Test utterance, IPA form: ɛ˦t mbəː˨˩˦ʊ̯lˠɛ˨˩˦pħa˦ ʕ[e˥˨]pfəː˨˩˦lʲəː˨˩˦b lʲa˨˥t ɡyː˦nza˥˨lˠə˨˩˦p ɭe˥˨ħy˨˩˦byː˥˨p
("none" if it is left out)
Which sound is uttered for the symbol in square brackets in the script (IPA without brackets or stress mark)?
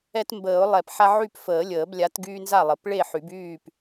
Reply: y˥˨